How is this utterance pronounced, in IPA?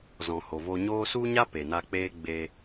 z ɔ̃˨ h o˨ v o˧ ɲ oː˦ s u˦ ɲ a˦ p e˨ n a˧ k͡p eː˦ ɡ͡b e˧

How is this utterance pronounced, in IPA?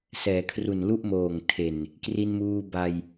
s ɛː˩˦ kʰ r u˨˩ n l u˥˩ ʔ m oː˨˩ ŋ tʰ e˨˩ n | k r i˧ n m uː˧ b a˧ j

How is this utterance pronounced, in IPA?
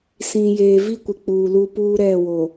s ĩ˨ j eː˨ v i˦ kʷ ɪ˨ k͡p uː˨ l u˦ p uː˦ ɾ ɛ˦˨ w o˨

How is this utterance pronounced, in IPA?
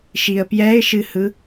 ʃ i ə̯ p j ɛ ɪ̯ ʃ ɨ h ɯ

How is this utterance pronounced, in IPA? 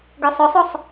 ɡ ø sˤ ɵ sˤ o sˤ

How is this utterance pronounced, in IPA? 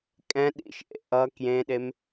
kʼ ɛ̃ ɗ ḭ ʃ ʔ ḛ ʔ ʌ k j ẽ ɗ e m

